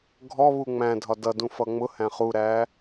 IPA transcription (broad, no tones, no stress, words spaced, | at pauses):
ɡʱɔβu ŋ͡mæ̃dʱɒ dʌdũfʌ ŋ͡mʊhæ̃ χuɾæ